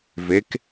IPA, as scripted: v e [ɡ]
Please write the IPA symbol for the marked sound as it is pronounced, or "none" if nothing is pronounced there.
k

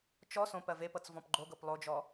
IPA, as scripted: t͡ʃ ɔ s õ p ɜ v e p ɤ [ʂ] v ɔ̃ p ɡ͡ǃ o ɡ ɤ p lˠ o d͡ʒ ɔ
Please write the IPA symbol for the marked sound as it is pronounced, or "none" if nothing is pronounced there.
t͡s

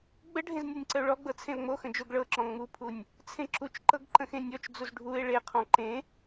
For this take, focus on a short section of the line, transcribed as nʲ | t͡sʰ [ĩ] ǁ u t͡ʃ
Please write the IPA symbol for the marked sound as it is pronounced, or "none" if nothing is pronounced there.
ẽ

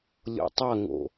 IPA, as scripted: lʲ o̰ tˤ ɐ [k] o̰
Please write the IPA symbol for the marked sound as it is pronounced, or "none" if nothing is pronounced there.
ŋ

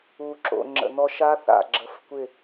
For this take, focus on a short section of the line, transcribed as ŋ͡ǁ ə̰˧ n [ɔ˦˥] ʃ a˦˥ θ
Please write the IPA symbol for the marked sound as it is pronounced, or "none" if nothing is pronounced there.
ɔ˦˥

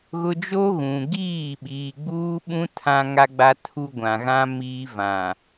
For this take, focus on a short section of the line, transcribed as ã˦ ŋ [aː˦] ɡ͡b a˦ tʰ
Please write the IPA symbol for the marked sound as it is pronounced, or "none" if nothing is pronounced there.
a˦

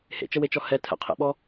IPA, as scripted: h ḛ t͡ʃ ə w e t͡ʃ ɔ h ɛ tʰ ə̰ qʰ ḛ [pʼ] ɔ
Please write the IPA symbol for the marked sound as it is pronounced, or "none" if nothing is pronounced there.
ɓ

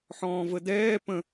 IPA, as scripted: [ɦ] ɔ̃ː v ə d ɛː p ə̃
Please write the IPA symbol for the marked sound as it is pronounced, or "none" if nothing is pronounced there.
ħ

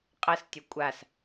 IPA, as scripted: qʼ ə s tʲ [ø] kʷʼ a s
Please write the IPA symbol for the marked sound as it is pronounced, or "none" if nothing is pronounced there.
ø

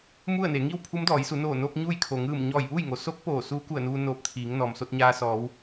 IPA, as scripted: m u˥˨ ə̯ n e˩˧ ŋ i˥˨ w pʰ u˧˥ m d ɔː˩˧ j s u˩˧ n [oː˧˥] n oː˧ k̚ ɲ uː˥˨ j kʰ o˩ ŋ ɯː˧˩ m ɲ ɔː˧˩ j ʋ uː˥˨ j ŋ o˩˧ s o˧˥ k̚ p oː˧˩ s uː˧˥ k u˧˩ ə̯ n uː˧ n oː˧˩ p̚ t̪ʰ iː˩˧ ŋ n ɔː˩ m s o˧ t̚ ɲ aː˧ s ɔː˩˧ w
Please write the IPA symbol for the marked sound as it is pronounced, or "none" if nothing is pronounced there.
oː˧˩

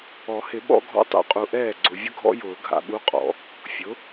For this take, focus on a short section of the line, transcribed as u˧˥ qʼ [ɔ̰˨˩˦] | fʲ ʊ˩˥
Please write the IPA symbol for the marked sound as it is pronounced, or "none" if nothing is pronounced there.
ɔ̰˨˩˦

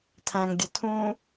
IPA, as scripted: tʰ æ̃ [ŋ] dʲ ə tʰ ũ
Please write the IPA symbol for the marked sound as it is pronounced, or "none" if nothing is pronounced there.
ŋ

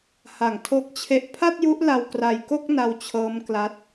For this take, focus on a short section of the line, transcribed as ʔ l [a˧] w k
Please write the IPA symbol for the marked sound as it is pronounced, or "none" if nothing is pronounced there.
a˧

